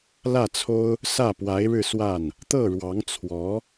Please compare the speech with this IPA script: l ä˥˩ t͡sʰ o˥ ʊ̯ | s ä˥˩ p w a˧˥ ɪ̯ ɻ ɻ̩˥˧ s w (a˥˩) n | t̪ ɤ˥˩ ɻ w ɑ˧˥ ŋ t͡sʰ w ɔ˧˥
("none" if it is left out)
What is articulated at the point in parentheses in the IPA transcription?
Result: a˥˩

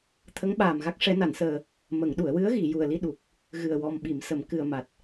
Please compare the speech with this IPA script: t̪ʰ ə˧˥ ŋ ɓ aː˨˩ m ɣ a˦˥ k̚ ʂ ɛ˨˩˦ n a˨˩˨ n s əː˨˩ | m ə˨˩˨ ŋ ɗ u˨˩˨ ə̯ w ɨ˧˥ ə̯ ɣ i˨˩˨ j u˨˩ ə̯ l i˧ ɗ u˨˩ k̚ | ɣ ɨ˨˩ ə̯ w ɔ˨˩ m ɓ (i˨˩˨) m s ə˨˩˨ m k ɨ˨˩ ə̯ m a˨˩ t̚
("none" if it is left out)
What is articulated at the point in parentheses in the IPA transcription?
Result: i˨˩˨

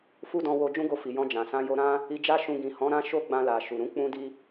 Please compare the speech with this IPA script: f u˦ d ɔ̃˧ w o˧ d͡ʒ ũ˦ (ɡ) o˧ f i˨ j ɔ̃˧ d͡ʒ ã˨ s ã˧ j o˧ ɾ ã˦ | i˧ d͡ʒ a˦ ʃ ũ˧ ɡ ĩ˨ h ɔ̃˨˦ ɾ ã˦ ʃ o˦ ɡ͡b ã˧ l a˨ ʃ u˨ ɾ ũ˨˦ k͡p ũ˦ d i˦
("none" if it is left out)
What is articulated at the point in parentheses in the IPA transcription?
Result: ɡ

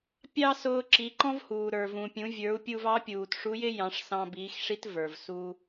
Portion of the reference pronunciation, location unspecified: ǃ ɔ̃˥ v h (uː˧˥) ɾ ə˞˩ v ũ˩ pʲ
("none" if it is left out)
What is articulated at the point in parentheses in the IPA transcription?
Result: uː˩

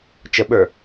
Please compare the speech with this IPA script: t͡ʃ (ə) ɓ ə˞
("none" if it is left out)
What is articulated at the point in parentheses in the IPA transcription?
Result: ə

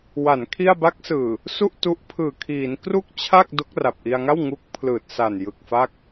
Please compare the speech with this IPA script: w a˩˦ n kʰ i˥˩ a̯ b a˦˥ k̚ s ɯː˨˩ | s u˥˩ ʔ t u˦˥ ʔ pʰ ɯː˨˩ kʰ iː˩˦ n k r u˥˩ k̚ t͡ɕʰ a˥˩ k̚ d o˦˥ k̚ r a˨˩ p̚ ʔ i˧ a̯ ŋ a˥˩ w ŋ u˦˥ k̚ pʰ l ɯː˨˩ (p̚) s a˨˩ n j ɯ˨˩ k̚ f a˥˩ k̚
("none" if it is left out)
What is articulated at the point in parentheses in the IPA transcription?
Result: t̚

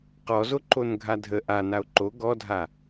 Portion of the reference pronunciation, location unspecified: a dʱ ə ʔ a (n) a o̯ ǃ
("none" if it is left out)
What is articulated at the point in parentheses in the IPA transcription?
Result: n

